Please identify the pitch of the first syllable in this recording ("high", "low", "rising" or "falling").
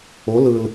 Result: rising